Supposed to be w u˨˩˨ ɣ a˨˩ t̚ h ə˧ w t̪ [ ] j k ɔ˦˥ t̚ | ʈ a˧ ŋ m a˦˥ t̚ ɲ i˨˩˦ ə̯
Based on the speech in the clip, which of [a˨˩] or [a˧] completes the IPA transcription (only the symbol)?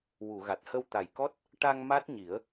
a˨˩